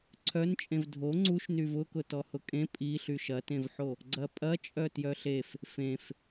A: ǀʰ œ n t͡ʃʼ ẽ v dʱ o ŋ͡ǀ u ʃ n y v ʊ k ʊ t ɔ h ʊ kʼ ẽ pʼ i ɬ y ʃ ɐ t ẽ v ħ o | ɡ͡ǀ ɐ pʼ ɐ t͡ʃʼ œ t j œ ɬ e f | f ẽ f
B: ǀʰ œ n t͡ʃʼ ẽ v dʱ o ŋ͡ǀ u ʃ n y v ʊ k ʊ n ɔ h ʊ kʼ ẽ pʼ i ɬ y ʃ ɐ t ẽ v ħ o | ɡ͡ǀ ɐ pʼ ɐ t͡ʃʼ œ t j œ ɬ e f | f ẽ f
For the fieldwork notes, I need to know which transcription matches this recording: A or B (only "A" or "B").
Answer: A